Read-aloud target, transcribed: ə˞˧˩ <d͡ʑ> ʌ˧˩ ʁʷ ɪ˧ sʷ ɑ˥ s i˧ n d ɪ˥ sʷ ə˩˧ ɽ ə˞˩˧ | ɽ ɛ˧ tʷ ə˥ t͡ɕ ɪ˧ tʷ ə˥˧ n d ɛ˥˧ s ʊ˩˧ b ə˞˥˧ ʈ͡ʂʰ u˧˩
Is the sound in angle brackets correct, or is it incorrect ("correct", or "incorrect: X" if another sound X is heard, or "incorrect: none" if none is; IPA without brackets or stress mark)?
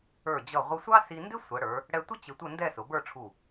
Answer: correct